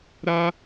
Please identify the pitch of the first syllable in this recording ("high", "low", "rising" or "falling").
high